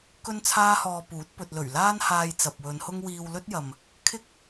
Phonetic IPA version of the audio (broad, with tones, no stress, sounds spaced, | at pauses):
k ɵ˥ n t͡sʰ aː˥ h ɔː˧ p uː˨˥ t̚ p ɵ˧ t̚ l ɵ˨˩ ɥ l aː˥ n h aː˧ j t͡s ɐ˨ p̚ w ɵ˨˧ n h ʊ˥ ŋ w iː˧ w l ɵ˥ t̚ j ɐ˨ m | kʰ ɪ˥ k̚